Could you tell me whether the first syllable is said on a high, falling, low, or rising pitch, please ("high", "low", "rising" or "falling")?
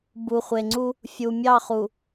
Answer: low